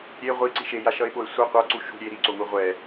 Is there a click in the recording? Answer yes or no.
yes